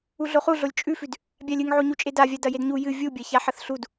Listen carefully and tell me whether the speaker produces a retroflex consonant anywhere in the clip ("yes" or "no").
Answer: no